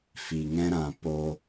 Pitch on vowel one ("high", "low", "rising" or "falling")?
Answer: low